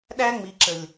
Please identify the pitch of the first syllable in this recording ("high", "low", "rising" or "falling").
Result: high